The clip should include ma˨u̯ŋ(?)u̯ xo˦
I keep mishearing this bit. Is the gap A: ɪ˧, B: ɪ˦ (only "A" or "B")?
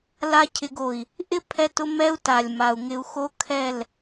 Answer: A